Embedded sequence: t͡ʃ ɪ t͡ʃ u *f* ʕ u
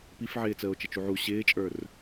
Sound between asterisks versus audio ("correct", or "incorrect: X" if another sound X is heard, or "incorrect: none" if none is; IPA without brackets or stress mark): incorrect: none